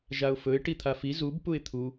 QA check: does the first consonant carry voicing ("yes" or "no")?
yes